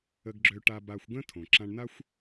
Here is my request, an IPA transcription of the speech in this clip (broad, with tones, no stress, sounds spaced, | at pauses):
ə˧ ɡ ɡ͡ǁ ø˧ ʈ a˧ b a˧ xʷ ɡ ə̃˥ tʰ õ˩ ǁ ã˧ ɳ n a˥ xʷ